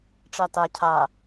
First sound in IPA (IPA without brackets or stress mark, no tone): ʈ͡ʂ